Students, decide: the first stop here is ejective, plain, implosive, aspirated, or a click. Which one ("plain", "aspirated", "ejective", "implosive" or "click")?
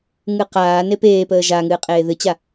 plain